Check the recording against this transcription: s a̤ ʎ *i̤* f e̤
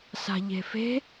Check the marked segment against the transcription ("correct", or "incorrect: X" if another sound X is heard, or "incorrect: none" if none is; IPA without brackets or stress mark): incorrect: e̤